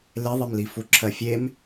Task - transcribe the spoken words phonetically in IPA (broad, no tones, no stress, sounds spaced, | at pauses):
l e ðˤ i m l i f u ǁʰ ɜ fʲ e m